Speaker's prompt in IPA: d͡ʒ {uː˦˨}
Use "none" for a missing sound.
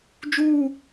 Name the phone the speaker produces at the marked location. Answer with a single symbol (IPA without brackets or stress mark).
uː˦˨